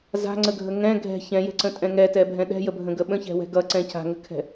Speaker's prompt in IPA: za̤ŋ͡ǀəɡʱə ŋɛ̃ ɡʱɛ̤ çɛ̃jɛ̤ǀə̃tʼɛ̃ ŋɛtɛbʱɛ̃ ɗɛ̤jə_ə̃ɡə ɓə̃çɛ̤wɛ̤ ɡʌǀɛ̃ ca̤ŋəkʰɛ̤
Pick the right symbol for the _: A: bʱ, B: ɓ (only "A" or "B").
A